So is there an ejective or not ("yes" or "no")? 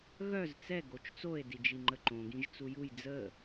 no